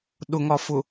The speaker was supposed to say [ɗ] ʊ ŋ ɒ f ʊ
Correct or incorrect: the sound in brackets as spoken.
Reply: correct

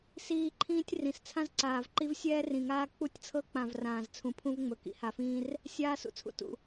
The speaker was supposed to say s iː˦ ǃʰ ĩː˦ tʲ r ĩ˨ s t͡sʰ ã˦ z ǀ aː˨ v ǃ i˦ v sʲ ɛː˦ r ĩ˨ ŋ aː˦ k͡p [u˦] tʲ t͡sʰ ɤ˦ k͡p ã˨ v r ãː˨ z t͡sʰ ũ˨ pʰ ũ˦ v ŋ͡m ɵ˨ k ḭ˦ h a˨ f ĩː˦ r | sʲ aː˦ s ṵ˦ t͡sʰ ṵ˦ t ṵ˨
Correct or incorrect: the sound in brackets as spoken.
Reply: correct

